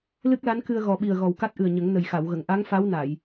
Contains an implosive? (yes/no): yes